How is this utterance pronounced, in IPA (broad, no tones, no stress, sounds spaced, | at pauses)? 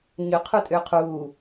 ɲ ʏ qʰ u tʼ ʏː qʰ uː